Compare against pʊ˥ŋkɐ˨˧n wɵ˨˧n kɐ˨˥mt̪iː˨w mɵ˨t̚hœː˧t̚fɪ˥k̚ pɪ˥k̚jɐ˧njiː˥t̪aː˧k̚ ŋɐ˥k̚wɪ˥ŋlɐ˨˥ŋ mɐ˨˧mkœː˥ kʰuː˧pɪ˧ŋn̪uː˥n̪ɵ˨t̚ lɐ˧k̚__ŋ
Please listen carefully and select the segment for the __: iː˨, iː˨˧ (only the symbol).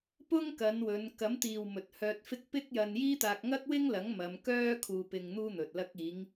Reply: iː˨˧